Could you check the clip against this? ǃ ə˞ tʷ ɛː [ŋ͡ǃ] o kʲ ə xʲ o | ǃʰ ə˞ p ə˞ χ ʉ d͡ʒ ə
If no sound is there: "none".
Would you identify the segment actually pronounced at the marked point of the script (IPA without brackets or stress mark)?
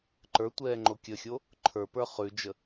ŋ͡ǃ